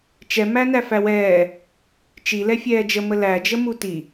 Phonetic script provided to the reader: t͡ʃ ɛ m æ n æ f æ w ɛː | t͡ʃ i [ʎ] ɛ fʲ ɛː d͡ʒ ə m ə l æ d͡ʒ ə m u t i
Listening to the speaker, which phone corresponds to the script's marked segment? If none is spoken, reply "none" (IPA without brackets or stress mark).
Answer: l